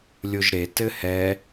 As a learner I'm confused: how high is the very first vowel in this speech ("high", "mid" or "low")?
mid